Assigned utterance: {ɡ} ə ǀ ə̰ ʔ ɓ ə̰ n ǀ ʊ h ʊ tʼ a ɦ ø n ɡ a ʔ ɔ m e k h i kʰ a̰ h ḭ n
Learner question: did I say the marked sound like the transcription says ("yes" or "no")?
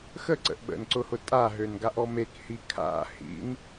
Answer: no